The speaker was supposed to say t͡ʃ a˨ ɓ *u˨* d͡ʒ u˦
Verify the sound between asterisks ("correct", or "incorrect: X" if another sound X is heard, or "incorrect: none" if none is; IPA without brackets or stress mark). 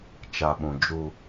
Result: incorrect: ũ˨